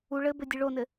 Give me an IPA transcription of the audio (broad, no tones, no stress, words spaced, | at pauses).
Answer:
u ɭɘbɘdʲɨ ɭonɘ